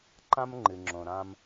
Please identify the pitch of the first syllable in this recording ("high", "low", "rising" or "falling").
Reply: high